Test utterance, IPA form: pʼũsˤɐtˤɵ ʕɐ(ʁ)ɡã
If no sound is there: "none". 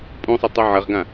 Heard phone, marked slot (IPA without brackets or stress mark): ʁ